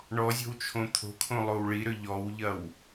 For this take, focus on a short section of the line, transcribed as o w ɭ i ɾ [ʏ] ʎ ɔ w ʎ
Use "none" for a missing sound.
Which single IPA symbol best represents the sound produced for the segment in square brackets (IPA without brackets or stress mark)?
ʏ